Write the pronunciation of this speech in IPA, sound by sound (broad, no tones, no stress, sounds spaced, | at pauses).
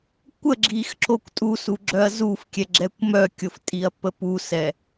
kʷ ə ɡ͡ǁ i x ǁ o kʷ tʼ u s u ɡ͡ǁ œ ɐ̯ z u f kʲ ɛ ɡ͡ǁ ɛ kʷ m œ kʲ o f tʼ i ɐ̯ pː ə p u s ɛ